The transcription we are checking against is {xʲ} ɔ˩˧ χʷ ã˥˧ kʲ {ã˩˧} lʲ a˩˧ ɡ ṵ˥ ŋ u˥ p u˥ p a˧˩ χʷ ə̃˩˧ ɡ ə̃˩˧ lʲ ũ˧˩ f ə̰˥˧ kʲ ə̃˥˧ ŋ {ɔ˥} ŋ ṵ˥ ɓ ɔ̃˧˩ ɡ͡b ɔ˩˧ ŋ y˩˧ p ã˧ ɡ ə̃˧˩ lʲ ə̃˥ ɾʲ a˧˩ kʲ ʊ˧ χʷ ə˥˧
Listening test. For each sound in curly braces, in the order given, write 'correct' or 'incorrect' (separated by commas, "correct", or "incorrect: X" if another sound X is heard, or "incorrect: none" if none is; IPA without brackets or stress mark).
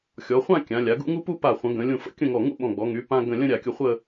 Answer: correct, correct, incorrect: ɔ˧˩